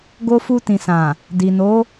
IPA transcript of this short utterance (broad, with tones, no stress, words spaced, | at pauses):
ɡo˧fu˧ tĩ˨sã˨ | di˨ no˨˦